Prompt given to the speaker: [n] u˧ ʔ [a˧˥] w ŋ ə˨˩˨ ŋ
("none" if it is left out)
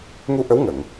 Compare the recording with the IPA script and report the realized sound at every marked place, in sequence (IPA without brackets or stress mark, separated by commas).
ŋ, ə˧˥